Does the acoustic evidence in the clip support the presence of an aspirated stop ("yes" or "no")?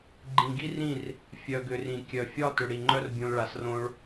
no